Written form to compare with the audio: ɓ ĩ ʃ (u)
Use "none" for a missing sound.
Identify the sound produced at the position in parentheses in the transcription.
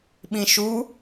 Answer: u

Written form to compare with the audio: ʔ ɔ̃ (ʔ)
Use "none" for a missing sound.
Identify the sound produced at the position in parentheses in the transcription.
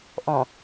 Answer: none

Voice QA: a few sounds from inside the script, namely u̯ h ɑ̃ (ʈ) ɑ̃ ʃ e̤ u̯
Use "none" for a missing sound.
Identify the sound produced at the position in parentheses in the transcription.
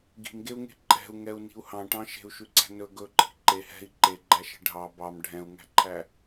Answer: ʈ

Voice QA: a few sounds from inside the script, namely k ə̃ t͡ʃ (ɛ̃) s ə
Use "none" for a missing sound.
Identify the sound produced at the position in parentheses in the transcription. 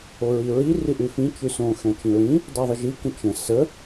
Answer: ə̃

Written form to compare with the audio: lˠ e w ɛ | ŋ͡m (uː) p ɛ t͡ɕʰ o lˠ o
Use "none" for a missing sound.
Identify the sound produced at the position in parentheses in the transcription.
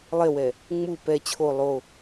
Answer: u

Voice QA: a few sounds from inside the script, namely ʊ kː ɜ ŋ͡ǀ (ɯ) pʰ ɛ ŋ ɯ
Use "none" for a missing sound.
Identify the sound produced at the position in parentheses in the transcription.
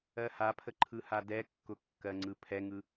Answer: ɯ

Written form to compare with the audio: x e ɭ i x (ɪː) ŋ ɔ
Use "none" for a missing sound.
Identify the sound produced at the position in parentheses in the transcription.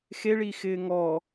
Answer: ɪː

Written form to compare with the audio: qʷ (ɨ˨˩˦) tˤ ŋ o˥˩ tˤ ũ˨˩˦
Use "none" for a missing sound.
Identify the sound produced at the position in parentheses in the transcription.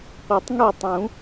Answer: e˨˩˦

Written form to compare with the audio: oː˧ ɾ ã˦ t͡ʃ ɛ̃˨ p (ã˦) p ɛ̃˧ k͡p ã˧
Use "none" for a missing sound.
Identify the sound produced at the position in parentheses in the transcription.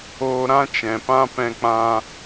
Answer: ã˦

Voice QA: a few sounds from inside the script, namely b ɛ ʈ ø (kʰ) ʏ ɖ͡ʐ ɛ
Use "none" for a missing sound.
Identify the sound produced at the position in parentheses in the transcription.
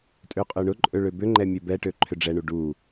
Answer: ǃʰ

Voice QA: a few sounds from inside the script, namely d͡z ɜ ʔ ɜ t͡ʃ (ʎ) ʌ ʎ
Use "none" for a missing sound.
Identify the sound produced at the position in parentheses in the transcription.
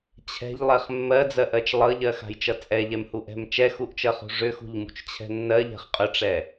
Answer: lˠ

